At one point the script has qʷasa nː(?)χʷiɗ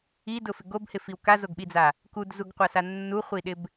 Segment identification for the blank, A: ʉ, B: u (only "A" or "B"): B